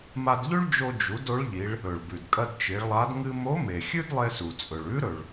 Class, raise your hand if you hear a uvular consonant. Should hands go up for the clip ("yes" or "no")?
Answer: no